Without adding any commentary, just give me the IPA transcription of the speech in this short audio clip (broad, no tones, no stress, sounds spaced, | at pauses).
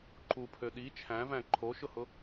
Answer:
ǃ u pʰ ø ɗ i t͡ʃʰ æ̃ v æ̃ ǃʰ o ʃ ʊ h ʊ